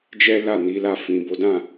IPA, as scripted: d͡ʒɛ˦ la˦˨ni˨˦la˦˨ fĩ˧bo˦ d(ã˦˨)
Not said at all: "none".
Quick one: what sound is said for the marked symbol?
ã˦˨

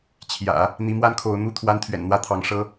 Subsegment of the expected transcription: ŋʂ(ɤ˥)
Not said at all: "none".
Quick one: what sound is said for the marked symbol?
ɤ˥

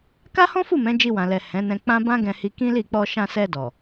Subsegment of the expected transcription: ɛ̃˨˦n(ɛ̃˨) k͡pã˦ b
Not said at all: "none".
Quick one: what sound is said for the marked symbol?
ɛ̃˧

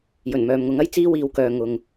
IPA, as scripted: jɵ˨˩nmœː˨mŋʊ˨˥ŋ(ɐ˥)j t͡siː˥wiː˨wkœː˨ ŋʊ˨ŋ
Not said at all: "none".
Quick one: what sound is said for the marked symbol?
ɐ˥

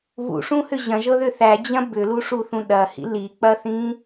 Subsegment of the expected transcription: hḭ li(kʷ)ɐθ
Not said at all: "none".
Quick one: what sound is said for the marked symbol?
k͡p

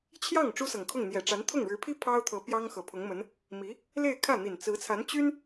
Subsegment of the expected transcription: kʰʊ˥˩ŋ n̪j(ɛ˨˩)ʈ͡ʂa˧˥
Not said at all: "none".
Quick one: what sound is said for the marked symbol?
ɛ˨˩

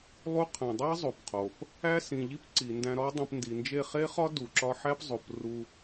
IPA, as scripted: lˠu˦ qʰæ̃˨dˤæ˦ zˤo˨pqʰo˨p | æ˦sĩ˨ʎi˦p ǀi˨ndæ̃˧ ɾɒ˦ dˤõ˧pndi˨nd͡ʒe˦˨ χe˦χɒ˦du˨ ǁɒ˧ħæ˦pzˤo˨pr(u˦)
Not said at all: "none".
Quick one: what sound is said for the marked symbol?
u˧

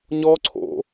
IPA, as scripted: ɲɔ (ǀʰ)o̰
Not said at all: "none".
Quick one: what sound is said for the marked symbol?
ǀʰ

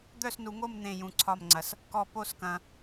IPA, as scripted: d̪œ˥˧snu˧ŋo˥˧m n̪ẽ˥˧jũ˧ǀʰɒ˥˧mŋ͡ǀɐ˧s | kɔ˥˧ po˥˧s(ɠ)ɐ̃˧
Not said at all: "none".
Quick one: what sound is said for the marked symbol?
k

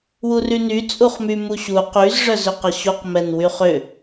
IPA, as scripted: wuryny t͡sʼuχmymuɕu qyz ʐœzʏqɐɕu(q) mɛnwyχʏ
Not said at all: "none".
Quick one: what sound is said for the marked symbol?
q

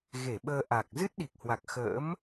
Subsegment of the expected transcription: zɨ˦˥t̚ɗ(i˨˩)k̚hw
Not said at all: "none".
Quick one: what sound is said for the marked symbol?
i˨˩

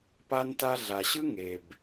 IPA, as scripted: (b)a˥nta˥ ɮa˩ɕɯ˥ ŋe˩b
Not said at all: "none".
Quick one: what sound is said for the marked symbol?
p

